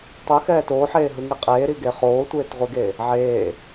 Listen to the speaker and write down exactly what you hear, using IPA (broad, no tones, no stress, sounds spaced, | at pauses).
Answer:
tˤ ɯ x ɛː t oː ħ eː ɦ ɯ ŋ i qʼ eː ɾ i ɡ e χ oː tʷ eː t ʁʷ i ɡ e | ʕ eː